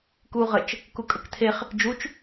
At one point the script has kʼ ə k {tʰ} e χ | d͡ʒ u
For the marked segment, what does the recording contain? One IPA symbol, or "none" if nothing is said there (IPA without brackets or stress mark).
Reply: tʰ